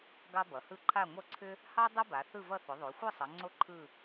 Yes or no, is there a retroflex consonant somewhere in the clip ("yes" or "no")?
no